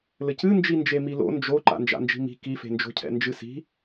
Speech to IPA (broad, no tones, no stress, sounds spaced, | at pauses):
l ɘ c ɨ n d͡ʒ i n d͡ʒ e m i l o̰ n d͡ʒ o ǃ a̰ n d͡ʒ a̰ n d͡ʒ i̤ m i̤ k i f e̤ n d͡ʒ o̤ cʰ ɛ̰ n d͡ʒ ɨ s i̤